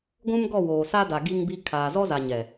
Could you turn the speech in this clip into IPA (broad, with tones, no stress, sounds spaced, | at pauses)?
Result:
ɡʷ ũ˦ m ɡ ɔ˦˨ w oː˨ s a˦ d a˨ ɡ i˦ ŋ b i˦ kʰ aː˨ z ɔ˦ z a˨ ɲ ɛ˨